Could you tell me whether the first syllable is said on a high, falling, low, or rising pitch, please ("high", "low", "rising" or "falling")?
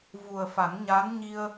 low